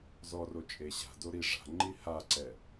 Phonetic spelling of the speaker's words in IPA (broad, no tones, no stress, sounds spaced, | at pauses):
z ɔ r o t͡ʃʼ e ɕ a̤ d o ɾ i ʐ a̤ ŋ͡ǃ i h a ǀ ɛ